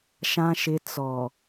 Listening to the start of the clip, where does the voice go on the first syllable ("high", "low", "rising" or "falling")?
low